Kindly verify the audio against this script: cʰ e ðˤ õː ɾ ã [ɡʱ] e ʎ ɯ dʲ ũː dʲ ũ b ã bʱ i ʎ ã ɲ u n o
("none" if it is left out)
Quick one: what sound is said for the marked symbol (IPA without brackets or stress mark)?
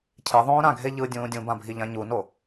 ɡʱ